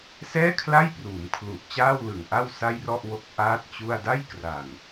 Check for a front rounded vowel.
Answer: absent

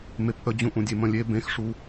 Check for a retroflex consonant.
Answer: present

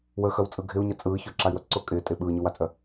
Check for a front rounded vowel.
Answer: present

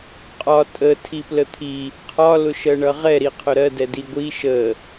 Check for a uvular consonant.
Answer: present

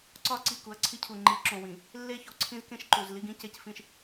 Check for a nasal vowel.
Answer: present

